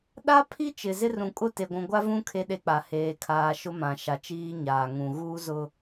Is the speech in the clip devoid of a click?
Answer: yes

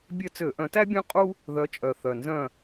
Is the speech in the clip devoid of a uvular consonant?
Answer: no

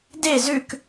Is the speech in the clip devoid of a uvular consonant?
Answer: yes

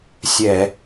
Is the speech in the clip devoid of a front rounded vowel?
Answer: yes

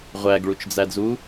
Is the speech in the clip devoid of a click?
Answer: yes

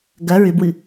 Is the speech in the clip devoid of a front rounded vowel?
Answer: no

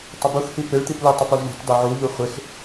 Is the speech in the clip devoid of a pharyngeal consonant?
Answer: no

